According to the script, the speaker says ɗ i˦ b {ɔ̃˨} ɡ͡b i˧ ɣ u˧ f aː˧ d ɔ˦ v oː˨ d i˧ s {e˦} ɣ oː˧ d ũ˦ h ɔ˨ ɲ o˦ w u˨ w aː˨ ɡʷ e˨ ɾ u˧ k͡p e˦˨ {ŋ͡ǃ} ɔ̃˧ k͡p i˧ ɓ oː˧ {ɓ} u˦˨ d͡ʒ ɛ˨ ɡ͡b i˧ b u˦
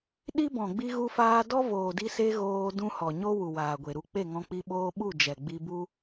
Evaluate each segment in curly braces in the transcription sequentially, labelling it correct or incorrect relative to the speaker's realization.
correct, correct, incorrect: ŋ, correct

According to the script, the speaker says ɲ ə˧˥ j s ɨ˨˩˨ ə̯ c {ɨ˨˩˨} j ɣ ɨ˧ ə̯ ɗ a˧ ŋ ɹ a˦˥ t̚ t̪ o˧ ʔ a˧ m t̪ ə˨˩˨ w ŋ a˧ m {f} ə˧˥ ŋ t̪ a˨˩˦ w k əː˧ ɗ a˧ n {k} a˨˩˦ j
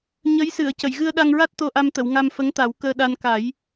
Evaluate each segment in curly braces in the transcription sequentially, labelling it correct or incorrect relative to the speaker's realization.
incorrect: ə˨˩˨, correct, correct

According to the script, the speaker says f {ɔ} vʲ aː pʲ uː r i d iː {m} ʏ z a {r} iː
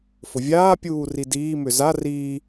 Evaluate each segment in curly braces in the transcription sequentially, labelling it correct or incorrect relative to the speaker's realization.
incorrect: ʊ, correct, correct

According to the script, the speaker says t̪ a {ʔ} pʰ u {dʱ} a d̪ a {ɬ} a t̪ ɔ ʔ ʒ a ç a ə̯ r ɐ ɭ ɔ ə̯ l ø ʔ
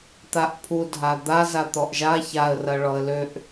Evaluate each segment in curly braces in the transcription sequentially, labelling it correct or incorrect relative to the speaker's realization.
correct, correct, incorrect: z

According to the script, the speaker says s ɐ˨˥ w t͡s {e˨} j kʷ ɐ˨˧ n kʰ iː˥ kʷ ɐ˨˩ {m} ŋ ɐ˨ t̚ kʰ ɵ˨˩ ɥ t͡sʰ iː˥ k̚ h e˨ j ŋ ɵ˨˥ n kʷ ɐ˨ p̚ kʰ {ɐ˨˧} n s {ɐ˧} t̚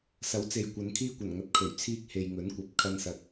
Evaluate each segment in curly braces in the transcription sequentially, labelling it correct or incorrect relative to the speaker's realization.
correct, incorrect: n, incorrect: ɐ˧, incorrect: ɐ˨

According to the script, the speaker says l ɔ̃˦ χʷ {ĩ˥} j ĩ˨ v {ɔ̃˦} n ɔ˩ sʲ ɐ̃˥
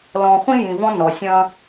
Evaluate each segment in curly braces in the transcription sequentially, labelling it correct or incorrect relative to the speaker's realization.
correct, correct

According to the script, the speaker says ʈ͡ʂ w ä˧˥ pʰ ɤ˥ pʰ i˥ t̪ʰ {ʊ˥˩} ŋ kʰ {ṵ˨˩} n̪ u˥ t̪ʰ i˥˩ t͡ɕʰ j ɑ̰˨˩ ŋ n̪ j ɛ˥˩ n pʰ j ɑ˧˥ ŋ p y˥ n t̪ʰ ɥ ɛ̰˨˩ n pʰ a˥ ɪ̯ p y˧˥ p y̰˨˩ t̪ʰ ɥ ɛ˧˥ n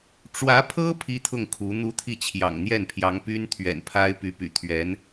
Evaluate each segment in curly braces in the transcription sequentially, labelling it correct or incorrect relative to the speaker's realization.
correct, incorrect: u˧˥

